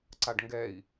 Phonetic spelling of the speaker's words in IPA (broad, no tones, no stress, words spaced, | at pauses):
ǀaɖŋɡɛi̯